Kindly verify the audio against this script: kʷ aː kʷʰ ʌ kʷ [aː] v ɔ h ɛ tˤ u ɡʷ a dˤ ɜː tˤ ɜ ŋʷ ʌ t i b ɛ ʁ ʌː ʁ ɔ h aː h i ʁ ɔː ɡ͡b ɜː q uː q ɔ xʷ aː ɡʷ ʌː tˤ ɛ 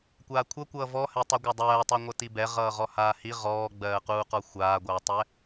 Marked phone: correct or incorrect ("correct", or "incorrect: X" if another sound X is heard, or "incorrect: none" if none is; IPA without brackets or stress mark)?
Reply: incorrect: ʌː